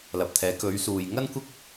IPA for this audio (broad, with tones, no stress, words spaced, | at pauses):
lɐ˨p̚t̪ʰɛː˨˥ kɵ˨˧ɥsuː˨j ŋɐ˥nkʷɪ˥k̚